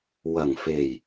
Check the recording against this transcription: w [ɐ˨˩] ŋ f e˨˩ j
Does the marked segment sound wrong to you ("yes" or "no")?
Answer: no